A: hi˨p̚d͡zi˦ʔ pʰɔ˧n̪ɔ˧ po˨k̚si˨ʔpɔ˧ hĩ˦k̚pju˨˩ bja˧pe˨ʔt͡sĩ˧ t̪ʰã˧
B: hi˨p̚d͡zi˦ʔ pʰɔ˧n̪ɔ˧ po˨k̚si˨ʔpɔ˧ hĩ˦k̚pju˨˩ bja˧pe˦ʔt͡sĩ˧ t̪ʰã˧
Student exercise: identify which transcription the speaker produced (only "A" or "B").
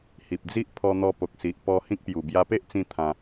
B